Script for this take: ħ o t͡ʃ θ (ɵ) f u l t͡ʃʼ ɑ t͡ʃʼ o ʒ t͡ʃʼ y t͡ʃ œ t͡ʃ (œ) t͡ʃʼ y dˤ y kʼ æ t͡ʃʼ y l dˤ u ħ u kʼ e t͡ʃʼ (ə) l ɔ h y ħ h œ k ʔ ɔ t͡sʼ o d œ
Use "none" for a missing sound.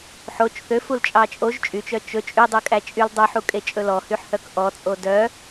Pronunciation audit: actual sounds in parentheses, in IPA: ø, ɵ, ɵ

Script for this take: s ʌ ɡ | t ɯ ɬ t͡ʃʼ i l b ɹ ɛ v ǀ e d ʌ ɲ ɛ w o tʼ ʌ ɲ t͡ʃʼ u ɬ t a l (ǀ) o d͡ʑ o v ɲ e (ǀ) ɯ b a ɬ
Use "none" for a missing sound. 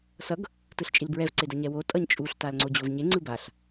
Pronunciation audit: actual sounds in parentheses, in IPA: ŋ͡ǀ, ŋ͡ǀ

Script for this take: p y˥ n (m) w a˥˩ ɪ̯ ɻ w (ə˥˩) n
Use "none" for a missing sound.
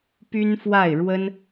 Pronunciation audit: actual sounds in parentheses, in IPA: f, ə˥

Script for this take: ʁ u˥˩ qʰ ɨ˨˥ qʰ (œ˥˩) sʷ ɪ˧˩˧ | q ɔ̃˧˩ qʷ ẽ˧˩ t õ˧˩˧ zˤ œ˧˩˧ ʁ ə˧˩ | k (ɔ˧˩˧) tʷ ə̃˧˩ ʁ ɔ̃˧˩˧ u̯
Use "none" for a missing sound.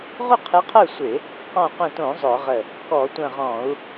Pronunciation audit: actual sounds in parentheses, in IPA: œ˥˩, ɔ˧˩˧

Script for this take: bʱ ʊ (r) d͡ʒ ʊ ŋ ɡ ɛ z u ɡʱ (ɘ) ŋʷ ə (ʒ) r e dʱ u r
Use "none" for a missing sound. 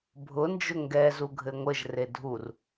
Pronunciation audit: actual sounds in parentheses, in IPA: n, ɘ, ʒ

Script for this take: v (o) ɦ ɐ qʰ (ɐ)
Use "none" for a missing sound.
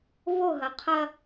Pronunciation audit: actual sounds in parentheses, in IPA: o, ɐ

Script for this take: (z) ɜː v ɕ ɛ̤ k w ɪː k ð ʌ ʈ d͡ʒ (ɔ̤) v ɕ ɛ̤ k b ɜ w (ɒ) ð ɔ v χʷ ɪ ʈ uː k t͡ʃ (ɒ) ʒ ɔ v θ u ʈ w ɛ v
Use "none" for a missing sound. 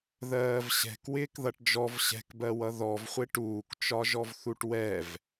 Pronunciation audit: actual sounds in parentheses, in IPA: ð, ɔ, ʌ, ɒ

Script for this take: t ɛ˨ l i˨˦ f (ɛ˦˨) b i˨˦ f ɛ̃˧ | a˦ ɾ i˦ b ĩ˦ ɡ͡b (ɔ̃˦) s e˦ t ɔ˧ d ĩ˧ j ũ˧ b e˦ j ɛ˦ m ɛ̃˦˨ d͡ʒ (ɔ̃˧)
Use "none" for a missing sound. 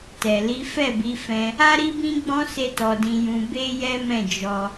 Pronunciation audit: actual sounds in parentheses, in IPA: ɛ˦˨, ɔ̃˦, ɔ˧

